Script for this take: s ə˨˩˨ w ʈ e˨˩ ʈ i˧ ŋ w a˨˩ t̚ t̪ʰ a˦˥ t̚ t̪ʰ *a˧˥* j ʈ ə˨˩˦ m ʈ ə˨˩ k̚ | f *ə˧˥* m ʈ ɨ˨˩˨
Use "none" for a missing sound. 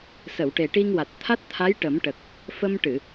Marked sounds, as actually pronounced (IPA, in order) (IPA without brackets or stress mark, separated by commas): a˧˥, ə˧